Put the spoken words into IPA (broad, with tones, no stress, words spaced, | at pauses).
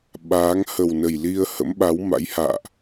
ɓaː˨˦ŋ hə˨˩wnə˨˩jli˧ə̯ hə̰˧˥mɓa˨˦wma̰˧˥jha̰ː˧˨ʔ